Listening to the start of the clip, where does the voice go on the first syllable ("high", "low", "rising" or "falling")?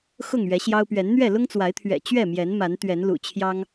falling